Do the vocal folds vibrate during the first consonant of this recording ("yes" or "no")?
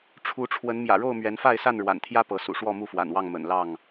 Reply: no